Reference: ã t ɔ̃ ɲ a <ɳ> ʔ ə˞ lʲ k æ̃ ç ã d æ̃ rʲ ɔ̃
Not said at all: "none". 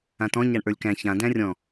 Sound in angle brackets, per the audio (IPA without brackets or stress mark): ɳ